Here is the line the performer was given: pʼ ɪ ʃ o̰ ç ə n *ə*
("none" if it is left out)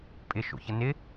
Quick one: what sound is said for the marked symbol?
ɪ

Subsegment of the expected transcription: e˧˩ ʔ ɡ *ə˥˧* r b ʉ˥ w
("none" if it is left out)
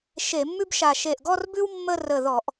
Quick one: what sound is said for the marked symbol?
ɔ˥˧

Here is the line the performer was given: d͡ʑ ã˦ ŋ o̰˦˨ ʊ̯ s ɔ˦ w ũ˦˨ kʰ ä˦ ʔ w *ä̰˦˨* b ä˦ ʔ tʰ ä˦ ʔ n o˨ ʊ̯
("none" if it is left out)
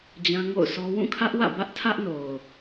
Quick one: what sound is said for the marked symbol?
ä̰˦˨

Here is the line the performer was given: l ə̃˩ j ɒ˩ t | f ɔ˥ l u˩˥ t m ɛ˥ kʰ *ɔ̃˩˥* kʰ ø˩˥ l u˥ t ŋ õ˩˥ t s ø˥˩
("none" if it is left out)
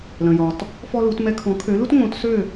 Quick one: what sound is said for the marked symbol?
ɔ̃˩˥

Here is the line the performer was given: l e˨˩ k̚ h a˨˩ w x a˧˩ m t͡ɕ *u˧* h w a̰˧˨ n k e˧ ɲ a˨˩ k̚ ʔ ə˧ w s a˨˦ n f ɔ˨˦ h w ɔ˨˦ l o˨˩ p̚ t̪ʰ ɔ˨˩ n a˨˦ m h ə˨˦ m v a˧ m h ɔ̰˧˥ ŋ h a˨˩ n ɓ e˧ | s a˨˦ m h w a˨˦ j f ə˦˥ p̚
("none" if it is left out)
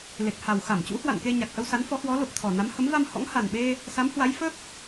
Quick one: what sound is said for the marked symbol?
ṵ˧˥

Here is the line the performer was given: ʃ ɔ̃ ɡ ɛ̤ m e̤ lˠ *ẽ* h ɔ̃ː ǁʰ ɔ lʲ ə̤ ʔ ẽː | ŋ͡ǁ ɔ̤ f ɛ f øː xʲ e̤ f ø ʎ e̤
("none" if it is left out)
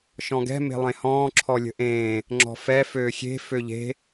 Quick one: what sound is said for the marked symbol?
ẽ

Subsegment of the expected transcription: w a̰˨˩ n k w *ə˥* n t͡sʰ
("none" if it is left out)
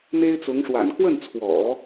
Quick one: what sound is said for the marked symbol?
ə˥˩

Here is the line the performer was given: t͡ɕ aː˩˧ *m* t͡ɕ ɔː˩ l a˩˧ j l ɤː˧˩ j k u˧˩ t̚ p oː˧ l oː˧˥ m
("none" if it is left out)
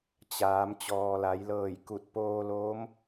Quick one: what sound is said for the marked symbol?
m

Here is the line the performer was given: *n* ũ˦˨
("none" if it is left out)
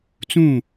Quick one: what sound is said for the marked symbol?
t͡s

